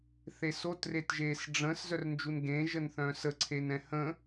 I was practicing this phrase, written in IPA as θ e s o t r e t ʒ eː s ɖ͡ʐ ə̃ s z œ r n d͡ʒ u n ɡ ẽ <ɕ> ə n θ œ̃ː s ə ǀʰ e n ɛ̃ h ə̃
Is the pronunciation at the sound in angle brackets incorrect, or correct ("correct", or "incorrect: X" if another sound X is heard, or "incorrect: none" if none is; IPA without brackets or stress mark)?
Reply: incorrect: ʒ